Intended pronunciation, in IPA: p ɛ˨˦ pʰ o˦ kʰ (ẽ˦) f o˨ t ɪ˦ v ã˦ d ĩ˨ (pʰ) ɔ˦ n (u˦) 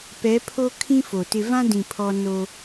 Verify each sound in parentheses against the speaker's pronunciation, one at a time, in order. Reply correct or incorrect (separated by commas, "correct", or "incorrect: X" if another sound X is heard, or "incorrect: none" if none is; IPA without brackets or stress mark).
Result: incorrect: ĩ˦, correct, incorrect: o˦